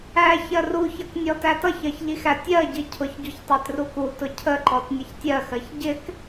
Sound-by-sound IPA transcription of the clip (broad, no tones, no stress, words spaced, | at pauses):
æ çɜruçʌk nʲɔtætʌçɜç ʎixætʲɜɟi cʰʊçɟuç tˤætrukutʊ cʰəǃɔt nʲəçtʲɜxɜç ɟɪk